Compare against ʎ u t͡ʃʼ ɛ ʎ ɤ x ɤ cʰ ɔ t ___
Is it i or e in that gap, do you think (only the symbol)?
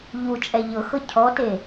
e